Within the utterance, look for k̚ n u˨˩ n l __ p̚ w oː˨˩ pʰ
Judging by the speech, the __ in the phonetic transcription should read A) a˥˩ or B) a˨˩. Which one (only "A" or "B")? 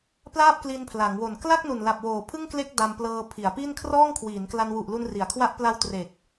B